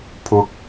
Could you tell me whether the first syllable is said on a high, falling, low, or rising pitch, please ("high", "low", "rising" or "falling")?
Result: low